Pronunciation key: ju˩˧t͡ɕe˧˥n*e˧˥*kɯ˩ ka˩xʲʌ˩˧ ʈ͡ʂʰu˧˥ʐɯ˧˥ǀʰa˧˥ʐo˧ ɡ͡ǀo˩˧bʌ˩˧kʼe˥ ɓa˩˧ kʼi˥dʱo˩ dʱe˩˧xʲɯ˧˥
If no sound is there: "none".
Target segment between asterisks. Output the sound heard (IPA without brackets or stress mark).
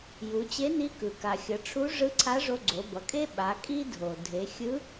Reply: i˧˥